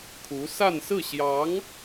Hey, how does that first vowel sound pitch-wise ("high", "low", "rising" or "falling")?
rising